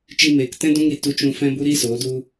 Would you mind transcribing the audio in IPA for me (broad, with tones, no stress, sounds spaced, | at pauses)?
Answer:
t͡ʃ i˧ m eː˨ k t ɛ̃˦ d ũ˦ ŋ ɾ i˨ t u˧ t͡ʃ ũ˧ f ɛ̃˦ b u˦ ɾ i˦ s oː˨˦ d u˦